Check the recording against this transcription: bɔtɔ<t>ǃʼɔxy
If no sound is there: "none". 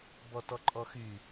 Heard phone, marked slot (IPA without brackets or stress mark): none